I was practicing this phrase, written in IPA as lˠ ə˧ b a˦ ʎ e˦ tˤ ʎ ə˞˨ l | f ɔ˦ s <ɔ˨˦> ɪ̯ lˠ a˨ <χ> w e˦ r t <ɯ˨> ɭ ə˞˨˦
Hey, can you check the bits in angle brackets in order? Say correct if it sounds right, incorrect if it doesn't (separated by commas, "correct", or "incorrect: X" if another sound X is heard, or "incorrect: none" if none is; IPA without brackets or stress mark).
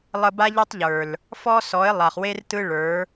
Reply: correct, correct, incorrect: ɯ˦